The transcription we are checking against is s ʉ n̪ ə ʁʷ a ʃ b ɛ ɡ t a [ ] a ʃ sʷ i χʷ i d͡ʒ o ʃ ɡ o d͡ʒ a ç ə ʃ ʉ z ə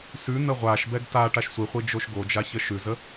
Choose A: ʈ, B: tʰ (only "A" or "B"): A